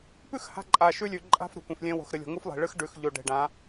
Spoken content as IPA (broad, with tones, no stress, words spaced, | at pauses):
pʉ˦˨x ha̤˦ ǃʼa˨ʃʉ˦lʲʉ˨ ǃʼa̤˦f ɾo̤˨kʷẽ˨flʲẽ˦ wo̤˨xɾɨ˨lʲo̤˨ ŋu˦flˠe̤˨ɭɨ˦x ɖʉ˨xʎo˨ɖe̤˨ɖã˨˦